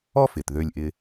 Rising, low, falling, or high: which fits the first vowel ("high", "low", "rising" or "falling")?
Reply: high